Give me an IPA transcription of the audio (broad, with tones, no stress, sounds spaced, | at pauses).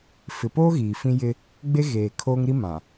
f ɪ˨ p oː˦ ɣ iː˨ f ĩ˦ j ɪ˦ | ɡ͡b e˦ ɣ eː˨ kʰ oː˦ ŋ ɾ i˦ m ã˨